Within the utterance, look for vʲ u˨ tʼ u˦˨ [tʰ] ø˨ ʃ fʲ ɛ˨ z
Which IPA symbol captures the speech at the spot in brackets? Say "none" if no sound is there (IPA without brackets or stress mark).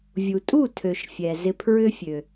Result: tʰ